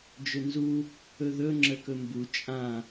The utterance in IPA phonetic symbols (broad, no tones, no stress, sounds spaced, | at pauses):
d͡ʒ ɵ n z u | ɵ ð ɵ ŋ͡ǁ ə k ɵ m b u t͡ʃʼ ã